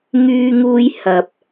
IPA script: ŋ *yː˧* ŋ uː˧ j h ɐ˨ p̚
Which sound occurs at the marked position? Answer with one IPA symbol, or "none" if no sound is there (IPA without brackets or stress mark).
yː˧